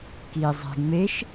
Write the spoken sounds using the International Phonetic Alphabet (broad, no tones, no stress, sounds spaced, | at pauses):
k i zˤ e̤ ŋ͡m e ʃ